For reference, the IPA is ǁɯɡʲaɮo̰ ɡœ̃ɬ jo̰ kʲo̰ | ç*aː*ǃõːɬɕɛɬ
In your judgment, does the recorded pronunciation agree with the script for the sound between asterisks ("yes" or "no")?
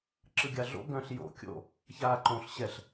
yes